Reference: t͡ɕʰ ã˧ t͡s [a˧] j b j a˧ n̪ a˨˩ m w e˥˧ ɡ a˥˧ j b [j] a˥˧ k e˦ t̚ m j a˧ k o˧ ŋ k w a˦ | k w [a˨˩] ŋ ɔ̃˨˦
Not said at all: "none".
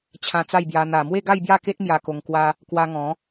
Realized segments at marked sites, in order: a˥˧, j, a˧

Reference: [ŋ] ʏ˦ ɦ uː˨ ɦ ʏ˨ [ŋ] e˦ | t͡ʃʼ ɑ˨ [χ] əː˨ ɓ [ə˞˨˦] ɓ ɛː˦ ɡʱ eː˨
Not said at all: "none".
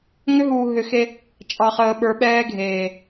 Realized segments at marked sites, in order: ŋ, x, χ, ə˞˨˦

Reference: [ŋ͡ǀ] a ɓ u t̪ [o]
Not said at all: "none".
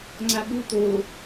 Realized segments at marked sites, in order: ŋ͡ǀ, o

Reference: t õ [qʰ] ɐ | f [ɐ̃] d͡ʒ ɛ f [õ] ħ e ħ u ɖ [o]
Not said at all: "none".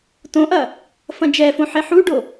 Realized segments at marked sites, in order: ʔ, ɐ̃, õ, o

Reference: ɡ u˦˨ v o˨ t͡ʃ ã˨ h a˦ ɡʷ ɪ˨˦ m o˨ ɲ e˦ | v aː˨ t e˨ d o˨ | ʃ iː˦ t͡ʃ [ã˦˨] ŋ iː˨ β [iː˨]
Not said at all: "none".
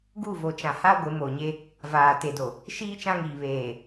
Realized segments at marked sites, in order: ã˦, eː˨

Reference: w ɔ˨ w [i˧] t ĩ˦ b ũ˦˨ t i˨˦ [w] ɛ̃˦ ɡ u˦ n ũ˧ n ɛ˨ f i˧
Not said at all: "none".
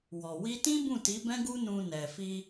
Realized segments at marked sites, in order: i˧, b

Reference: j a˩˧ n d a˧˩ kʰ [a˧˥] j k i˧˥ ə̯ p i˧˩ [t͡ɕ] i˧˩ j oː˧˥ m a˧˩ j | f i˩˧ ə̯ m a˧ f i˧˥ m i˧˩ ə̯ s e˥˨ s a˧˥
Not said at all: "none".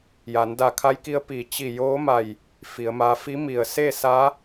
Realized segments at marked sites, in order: a˧˥, t͡ɕ

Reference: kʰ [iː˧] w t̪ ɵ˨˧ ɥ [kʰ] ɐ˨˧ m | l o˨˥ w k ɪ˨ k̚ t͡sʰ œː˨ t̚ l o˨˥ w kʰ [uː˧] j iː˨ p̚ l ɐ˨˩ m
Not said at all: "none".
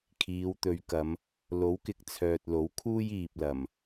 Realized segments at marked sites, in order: iː˨˧, k, uː˥

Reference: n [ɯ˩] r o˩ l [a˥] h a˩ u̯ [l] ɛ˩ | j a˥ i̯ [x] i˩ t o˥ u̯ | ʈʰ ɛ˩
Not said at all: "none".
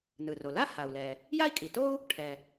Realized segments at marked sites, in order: ɯ˩, a˥, l, kʼ

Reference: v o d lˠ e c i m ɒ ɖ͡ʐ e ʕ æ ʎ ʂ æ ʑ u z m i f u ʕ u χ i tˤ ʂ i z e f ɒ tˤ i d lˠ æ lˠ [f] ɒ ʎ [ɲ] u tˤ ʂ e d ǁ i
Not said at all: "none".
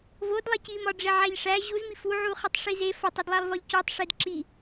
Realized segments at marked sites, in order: v, c

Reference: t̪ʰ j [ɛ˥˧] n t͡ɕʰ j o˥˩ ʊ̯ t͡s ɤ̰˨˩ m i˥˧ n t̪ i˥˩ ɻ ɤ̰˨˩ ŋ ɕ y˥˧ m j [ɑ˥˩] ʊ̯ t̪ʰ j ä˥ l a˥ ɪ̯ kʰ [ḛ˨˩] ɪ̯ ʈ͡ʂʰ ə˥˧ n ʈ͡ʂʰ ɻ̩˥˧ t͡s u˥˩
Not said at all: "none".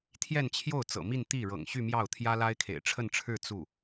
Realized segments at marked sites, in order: ɛ˥˧, ɑ˥˩, ḛ˨˩

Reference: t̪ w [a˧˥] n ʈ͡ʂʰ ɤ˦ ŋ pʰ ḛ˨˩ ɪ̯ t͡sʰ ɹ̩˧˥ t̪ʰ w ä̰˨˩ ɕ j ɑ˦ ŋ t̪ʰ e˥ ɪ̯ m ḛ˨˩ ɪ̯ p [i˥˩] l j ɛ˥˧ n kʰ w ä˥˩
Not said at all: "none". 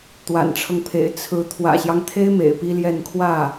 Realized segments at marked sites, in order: a̰˨˩, i˥

